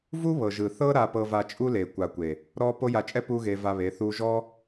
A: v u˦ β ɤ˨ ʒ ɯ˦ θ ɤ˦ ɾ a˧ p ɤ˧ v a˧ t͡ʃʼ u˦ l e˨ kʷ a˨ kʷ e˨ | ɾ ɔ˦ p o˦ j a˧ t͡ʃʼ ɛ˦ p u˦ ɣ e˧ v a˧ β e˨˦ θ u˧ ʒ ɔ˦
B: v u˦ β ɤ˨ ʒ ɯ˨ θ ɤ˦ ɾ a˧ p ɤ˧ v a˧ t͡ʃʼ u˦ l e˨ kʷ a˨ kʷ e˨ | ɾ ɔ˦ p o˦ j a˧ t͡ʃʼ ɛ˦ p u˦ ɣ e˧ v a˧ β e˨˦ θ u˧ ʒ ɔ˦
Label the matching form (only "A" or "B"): B